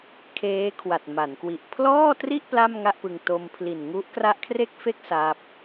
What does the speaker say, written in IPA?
kʰ eː˦˥ kʰ w a˨˩ t̚ m a˩˦ n k w i˨˩ ʔ pʰ l ɔː˥˩ t r i˥˩ ʔ p l a˥˩ m ŋ a˥˩ ʔ p ɯ˧ ŋ t o˧ m pʰ l i˨˩ n ŋ u˦˥ ʔ k r a˦˥ ʔ kʰ r e˥˩ k̚ f e˥˩ k̚ s a˦˥ p̚

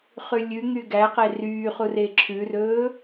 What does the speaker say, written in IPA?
χ ʉ lʲ ʉ ŋ y ɡ æ q e r yː χ u r e ǁʰ ʉ r ɵː

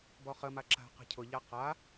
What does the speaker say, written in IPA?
b ɔ χ ə m a ǁ a̤ q ə̤ cʰ ʊ ʎ a q a

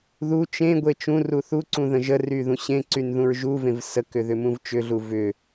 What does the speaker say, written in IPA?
ð u t͡ʃ ẽ ɡʷ e t͡ʃ ũ r u θ u ǀ ũ ð ə̃ ʒ ə r y ð ũ ɕ ẽ ǀ y n ð ũ ɹ ʒ u v ẽ v s ə k ʏ ð ʏ m ũ v t͡ʃ ʏ ɮ u v ʏ

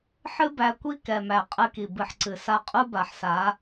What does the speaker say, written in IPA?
ħ ɨ˦ b æ˧ kʷ i˦ k ɛ˨ m æ˨ qʼ ɨ˧ k i˨ b ɨ˨ ħ ǀ ɨ˨ s a˧ qʼ u˦ b a˨ ħ s a˨˦

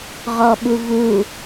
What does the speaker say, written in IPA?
ʁ ɔ ɓ u v u

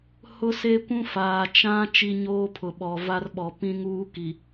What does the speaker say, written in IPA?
h ʊ˦ s e˦ kʷ ũ˦ f aː˨ t͡ʃ ã˦ t͡ʃ i˦ ɲ oː˦ pʰ ʊ˨ ɓ ɔ˨ v a˦ r ɓ ɔ˨ p ĩ˦ ŋ uː˦ k i˨

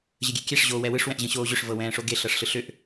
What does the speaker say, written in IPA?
ʑ ə ɡʲ e kʲ ɛ ʂ ʑ oː w ɛ w ɯ ʂ w ɛ̃ ʔ ʑ ə̃ ɕ oː ʑ ʏ ʂ v ɤ w ɛ̃ː ʂ o ɡ e ɬ ɤ ʂ ɬ ɯ ɬ ʏ ʔ

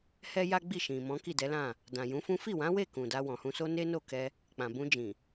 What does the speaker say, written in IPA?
h ɛ˦ j a˦ ɡ͡b i˦˨ ʃ ĩ˨ m ɔ̃˨˦ k i˦˨ d ɛ˨˦ l ã˦˨ | d ã˨ j ũ˨˦ f ũ˦ f i˦˨ w ã˨˦ w e˦˨ k ũ˨ d a˧ w ɔ̃˨ h ũ˧ s o˦ n e˦ n o˦˨ k ɛ˧ | k͡p ã˨ b ũ˧ d͡ʒ ĩ˨

